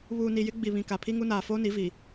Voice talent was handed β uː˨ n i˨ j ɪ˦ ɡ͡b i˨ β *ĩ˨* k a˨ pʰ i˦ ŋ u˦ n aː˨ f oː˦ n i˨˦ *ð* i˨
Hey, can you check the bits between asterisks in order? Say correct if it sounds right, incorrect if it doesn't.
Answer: correct, incorrect: v

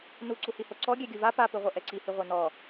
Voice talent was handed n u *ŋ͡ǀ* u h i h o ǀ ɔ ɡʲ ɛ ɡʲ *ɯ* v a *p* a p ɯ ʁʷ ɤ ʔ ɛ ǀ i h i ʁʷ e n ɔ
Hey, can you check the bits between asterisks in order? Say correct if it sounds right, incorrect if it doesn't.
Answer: incorrect: ǀ, correct, correct

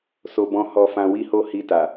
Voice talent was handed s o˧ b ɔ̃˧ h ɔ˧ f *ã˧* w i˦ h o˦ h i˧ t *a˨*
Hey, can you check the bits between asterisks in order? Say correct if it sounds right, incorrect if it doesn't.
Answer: correct, correct

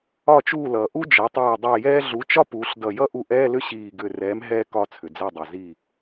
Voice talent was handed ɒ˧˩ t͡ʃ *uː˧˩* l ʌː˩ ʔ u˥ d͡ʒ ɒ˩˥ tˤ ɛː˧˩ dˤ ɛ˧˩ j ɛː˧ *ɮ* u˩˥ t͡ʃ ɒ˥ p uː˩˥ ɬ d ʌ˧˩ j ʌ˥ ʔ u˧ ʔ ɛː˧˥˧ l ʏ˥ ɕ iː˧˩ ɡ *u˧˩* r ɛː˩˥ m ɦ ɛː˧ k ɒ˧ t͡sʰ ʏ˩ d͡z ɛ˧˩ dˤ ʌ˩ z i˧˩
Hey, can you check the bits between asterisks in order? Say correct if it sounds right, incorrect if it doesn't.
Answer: correct, correct, incorrect: ʏ˧˩

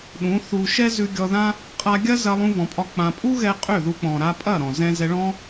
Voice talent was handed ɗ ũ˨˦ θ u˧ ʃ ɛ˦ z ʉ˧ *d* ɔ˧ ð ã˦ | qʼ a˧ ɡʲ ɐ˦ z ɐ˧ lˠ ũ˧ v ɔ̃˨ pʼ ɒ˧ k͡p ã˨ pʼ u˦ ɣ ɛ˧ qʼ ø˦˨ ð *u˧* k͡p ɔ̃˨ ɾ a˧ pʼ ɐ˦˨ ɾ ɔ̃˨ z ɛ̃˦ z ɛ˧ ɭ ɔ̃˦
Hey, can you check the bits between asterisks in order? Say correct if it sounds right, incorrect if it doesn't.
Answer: incorrect: ɡʲ, correct

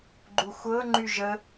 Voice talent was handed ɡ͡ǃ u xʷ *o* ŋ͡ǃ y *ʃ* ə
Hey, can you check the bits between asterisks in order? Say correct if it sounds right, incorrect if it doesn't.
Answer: incorrect: ɤ, incorrect: ʒ

